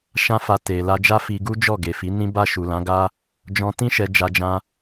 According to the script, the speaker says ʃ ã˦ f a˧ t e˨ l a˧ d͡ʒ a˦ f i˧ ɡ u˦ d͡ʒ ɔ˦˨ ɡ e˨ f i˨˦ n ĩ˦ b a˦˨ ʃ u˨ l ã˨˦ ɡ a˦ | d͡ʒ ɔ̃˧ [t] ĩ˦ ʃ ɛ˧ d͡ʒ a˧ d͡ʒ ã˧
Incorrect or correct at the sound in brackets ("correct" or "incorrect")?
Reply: correct